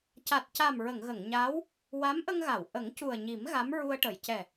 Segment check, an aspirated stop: absent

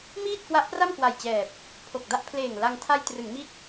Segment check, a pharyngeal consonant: absent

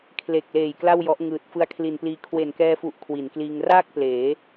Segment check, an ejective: absent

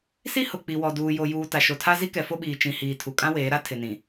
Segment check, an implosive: present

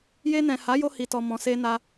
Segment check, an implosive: absent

